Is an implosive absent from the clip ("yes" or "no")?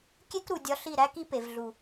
yes